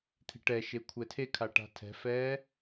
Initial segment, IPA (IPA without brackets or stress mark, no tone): t̪ʰ